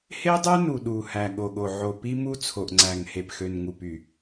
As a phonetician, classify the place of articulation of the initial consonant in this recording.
glottal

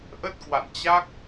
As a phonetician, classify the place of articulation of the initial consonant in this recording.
glottal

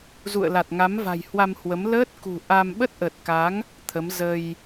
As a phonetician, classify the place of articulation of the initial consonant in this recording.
alveolar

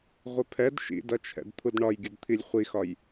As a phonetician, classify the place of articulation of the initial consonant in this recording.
uvular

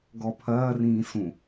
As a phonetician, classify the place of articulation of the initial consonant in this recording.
velar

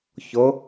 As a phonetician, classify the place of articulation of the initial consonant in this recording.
palatal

